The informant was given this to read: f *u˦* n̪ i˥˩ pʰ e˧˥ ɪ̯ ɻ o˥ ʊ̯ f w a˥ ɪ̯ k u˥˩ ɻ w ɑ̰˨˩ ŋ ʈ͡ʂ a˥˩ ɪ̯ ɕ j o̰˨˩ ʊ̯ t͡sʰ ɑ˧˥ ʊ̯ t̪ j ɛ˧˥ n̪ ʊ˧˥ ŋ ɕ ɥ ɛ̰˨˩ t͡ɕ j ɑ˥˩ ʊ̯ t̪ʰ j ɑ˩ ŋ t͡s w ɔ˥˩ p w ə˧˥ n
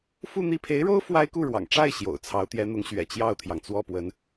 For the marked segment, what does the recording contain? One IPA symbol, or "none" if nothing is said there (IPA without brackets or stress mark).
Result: u˥˧